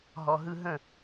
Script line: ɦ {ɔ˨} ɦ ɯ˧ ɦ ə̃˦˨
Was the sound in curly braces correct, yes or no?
yes